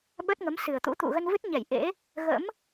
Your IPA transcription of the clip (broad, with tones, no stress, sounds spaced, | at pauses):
ɓ ə˦˥ t̚ ŋ ə˨˦ m s ɨ˨˩ ə̯ t̪ ṵ˧˥ t̪ ṵ˧˨ ɣ ə˧ n v ɨ˦˥ t̚ ɲ ɛ˧˩ j ʔ ḛ˧˥ | ɣ ə̰˧˥ m